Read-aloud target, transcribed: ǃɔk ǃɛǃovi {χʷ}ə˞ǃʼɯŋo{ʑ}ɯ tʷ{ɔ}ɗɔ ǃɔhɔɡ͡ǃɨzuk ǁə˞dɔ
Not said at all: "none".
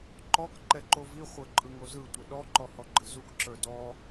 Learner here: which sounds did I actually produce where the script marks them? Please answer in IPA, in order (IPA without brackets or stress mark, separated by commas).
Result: χʷ, z, ə